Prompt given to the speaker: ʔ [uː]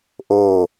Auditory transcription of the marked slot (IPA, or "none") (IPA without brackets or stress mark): oː